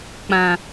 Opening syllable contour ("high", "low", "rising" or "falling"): low